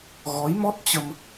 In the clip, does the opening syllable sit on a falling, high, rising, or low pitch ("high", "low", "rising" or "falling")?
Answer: rising